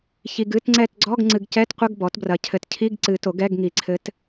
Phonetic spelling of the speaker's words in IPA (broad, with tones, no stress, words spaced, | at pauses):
çi˨ɡɨ˧˥˧tŋ͡ǀɛ˦˨t ɡ͡ǀɔ˧˥˧ɡŋ͡ǀɨ˨ɡcɛ˧˥˧tqʷɘ˧˥˧ɡ bɔ˩˥tbrɐ˨ cʰɘ˨tcʰi˧˥˧ɡǀɨ˨˩˦ to˩˥ɡɛ˧˥˧ɡŋi˨ǀʰɘ˧˥t